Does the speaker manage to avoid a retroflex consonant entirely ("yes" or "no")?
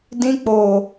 yes